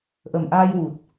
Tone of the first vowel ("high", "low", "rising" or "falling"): low